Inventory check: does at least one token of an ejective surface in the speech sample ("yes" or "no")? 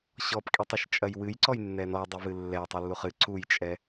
yes